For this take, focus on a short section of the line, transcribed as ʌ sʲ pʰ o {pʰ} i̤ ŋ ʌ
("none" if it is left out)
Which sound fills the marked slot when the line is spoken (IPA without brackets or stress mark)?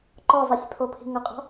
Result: pʰ